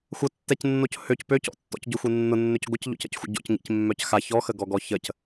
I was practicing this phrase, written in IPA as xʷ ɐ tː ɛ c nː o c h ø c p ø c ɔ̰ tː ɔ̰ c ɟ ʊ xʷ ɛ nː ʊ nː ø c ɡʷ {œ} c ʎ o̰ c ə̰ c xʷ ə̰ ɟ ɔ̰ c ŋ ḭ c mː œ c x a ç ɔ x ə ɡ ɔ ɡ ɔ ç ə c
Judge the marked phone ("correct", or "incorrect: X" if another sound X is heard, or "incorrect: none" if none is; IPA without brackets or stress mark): incorrect: ə